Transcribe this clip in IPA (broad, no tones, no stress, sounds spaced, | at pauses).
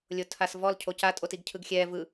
lʲ o tʰ a s v ɔ l cʰ o c a tʼ o t i ɡ cʰ ɯ ɡ xʲ ɛː v ɯ